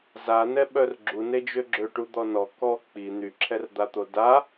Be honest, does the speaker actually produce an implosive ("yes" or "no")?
yes